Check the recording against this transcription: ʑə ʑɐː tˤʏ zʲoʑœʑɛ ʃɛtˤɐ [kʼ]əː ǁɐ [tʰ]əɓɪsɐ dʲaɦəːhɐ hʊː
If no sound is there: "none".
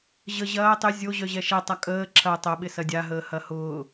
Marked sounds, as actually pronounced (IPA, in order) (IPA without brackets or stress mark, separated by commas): kʼ, tˤ